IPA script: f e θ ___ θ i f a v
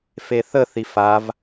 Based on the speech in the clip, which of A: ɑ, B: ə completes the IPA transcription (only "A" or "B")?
B